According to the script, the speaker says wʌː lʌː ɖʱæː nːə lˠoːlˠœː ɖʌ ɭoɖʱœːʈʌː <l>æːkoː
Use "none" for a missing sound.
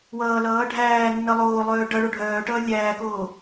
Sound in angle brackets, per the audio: lʲ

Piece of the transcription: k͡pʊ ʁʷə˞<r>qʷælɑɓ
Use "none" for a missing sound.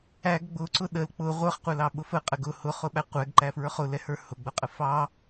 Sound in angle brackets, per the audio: χ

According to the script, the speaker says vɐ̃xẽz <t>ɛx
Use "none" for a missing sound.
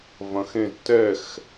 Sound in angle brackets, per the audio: t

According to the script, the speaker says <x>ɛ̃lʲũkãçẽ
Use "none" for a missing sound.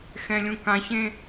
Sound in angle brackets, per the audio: x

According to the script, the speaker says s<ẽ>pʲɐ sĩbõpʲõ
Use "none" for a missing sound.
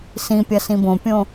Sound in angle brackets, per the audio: ĩ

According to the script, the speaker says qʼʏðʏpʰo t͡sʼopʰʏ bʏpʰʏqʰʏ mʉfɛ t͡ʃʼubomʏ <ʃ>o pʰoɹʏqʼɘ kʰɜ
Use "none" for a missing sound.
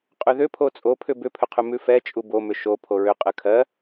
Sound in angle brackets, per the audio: ʃ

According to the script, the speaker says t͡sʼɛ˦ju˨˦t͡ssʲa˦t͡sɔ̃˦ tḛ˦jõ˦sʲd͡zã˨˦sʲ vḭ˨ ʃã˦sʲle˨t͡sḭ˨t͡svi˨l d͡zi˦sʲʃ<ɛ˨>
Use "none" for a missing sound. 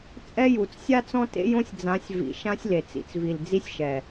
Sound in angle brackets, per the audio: ɛ˨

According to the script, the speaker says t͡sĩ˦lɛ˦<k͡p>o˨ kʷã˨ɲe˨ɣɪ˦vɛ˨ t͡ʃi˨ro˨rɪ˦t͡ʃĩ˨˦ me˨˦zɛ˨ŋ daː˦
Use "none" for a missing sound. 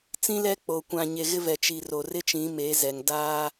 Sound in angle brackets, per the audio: k͡p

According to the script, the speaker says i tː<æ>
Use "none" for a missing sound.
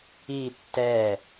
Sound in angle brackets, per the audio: ɛ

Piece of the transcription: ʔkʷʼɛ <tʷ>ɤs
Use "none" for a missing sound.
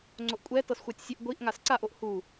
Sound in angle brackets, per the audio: t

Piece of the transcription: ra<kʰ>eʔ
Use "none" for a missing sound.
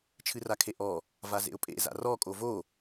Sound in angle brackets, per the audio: kʰ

